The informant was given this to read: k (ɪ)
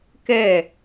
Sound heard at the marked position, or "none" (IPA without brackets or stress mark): ɛ